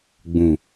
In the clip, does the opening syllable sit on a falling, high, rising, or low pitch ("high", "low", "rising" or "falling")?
low